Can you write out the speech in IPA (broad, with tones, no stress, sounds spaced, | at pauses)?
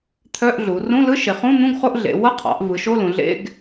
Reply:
t̪ʰ œ˧˥˧ ʔ ɮ u˩˧ r ũ˧˥˧ l ɯ˧˥˧ ʃ e˩˧ χ ũ˧˥˧ n̪ ũ˧˥˧ ɡ χ o˧˥˧ ʔ ɮ ḛ˩˧ w ʌ˧˥˧ qʰ ɑ̰˩˧ ʔ v ɯ˩˧ ʃ o˧˥˧ l ũ˩˧ ɮ ḛ˧˥˧ ɡ